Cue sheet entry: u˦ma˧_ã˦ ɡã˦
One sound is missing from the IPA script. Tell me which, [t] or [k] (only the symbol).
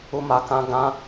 k